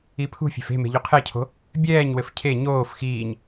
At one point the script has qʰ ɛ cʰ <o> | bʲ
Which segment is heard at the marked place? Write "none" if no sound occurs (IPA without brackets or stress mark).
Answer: o̤